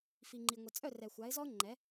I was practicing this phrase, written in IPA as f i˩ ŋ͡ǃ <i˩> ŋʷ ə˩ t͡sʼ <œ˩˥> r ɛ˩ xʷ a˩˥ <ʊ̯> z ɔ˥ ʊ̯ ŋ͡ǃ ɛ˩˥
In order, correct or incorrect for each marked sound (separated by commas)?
correct, incorrect, incorrect